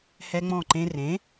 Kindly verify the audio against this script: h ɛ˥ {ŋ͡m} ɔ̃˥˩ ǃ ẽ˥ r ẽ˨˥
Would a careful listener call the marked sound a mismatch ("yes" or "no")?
no